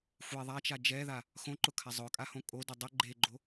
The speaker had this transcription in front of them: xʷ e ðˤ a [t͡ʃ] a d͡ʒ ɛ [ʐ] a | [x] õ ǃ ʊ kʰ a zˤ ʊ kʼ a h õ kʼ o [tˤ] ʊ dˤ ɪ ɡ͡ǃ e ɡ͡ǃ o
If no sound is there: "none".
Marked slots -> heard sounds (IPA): t͡ʃ, ð, x, d

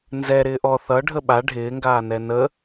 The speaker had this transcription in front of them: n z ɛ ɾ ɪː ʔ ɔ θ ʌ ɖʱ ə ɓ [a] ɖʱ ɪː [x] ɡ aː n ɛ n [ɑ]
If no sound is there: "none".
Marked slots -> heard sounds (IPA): a, ŋ, ə

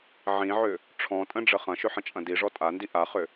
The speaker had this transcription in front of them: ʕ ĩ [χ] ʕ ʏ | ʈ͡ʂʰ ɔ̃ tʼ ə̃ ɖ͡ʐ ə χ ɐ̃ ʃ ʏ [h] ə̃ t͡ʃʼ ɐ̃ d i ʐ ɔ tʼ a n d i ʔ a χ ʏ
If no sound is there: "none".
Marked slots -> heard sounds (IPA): none, ħ

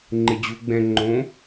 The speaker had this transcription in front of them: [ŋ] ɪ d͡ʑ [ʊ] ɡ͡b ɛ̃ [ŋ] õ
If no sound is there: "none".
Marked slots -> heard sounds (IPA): ŋ͡ǃ, u, ŋ͡ǃ

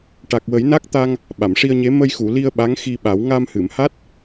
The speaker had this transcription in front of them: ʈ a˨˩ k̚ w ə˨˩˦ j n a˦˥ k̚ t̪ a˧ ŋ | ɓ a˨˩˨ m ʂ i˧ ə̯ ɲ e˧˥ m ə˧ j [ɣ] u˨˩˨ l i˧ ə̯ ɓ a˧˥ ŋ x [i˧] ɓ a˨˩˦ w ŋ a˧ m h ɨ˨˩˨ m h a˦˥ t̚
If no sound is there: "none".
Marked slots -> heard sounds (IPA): x, i˧

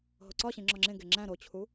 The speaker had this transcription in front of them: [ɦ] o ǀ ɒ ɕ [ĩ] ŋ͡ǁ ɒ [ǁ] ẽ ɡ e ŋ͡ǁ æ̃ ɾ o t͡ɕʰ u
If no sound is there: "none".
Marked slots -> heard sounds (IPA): ɦ, ĩ, ŋ͡ǁ

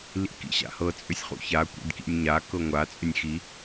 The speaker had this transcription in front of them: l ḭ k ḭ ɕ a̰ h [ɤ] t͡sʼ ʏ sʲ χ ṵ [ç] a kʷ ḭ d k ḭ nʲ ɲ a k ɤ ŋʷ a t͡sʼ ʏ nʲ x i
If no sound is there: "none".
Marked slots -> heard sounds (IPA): ɤ, ç

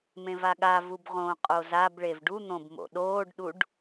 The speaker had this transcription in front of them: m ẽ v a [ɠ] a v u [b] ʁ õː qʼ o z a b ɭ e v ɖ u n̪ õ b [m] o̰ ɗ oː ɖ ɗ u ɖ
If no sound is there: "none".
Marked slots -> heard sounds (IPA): ɠ, b, m

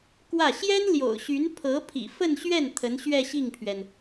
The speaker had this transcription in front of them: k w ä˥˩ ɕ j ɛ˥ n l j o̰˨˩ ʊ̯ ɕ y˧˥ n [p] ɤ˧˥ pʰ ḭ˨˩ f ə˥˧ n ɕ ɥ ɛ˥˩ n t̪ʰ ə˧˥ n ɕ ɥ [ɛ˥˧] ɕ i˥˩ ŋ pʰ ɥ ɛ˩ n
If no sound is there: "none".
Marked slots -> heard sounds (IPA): pʰ, ɛ˥˧

